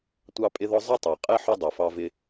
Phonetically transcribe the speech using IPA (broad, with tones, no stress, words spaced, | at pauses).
tʷɑ˥pʼɪ˥ðɔ˥ zˤʌ˥tˤɑ˨qʼɛ˥ ħʊ˥dˤi˨fɑ˦vɪ˦